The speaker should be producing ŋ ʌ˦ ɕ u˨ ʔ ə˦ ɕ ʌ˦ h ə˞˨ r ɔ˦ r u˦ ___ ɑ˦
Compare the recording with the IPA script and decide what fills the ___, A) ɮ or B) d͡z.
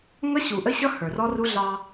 A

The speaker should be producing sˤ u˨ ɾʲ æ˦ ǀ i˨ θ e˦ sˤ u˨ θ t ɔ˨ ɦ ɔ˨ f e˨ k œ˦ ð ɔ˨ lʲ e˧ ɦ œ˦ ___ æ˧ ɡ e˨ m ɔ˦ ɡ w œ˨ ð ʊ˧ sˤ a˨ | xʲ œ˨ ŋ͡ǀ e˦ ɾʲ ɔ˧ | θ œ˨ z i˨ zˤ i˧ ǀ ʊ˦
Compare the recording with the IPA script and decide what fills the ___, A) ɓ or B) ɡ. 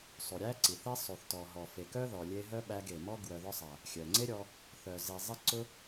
A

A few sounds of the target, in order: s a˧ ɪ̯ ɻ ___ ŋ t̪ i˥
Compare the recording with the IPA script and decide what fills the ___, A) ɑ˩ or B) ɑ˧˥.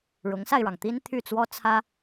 A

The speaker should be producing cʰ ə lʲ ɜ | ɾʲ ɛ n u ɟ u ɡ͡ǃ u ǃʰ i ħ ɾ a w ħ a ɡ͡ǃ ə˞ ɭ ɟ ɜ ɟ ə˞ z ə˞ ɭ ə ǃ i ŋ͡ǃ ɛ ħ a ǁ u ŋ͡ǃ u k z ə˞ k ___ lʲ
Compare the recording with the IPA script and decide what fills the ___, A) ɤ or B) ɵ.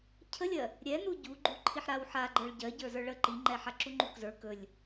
B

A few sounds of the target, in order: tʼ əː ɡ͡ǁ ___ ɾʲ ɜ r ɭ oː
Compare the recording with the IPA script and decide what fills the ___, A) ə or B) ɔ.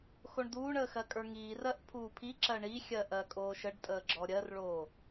B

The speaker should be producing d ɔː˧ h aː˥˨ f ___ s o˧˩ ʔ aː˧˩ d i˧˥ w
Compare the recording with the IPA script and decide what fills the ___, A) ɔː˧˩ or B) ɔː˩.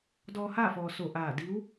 B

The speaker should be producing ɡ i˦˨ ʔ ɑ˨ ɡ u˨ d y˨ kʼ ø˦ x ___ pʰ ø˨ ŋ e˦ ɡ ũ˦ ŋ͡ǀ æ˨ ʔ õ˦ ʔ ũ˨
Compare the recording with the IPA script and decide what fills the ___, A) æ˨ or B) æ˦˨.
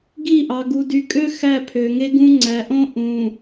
B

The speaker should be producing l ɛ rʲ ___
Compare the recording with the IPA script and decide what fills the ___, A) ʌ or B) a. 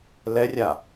B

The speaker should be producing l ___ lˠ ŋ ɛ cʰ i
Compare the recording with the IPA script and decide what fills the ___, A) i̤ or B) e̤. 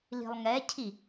A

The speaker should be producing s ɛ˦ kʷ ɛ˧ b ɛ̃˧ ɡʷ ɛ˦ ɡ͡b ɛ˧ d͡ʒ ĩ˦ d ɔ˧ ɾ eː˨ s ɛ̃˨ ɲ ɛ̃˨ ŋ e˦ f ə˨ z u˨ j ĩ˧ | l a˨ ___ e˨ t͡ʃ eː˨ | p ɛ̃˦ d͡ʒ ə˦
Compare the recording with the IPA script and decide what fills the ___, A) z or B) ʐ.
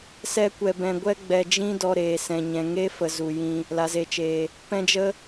A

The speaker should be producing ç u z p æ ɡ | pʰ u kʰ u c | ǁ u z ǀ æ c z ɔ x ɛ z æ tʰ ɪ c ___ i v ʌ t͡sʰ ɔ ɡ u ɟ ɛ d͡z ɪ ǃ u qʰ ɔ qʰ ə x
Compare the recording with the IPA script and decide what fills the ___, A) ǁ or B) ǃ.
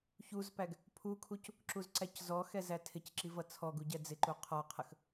A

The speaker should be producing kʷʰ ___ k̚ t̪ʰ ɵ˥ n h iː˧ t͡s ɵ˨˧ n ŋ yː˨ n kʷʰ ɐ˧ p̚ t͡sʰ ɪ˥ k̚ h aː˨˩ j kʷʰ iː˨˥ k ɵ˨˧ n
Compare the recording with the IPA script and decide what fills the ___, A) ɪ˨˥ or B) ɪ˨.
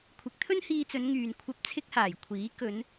A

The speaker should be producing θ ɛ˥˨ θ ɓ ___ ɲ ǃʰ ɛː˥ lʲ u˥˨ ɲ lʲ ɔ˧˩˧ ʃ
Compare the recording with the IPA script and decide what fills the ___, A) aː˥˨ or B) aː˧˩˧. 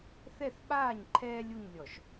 A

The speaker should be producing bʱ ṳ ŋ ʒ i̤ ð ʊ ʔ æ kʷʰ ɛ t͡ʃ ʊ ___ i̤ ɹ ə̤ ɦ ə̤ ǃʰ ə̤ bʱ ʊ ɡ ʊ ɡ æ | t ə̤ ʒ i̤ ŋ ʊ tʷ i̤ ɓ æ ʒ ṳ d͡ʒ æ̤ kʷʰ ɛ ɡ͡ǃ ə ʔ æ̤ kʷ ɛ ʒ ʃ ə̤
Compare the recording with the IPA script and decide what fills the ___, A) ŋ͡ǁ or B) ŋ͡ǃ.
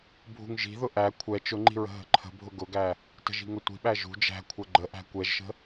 B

